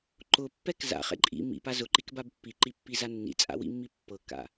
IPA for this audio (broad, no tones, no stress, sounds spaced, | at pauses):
ǃ ʊ pː ɛ k z a̰ χ ɛ̰ ǃʼ ḭ m ḭ p a z ʊ ǃ i k b a b pː i ǃ i pː i z a nː ḭ t͡sʼ a̰ w ḭ mː i pː ɤ k a̰